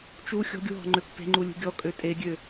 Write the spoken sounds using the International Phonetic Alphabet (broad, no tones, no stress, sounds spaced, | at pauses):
t͡ʃ u xʲ ɔ̤ ɡʲ u ɦ ɔ̤ ŋ͡ǃ ø pː e̤ ŋ͡ǃ u lʲ ṳ ɡʲ ɔ kʼ ø tʼ e ɡʲ ø